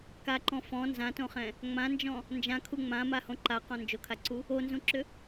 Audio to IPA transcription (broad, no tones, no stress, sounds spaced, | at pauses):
k a ǃ ɔ̃ f ɔ̃ n z ã t õ χ ɛ̃ | ŋ͡m ã n d͡ʒ ɔ̃ | n d͡ʒ ã kʰ u ŋ͡m ã m a h õ ǃ a q ɔ̃ n d͡ʒ o kʰ a ǀ u | o n z ũ ǁ ʏ